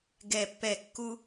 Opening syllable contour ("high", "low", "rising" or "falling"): falling